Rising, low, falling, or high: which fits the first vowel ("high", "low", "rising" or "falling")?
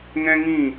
high